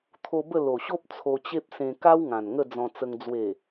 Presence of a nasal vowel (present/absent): present